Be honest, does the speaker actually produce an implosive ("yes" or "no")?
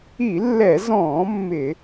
no